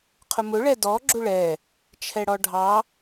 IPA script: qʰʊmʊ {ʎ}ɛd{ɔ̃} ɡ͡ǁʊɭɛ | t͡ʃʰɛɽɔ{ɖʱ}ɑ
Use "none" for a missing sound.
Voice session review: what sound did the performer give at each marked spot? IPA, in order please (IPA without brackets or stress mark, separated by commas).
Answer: ɭ, ɔ, ɖʱ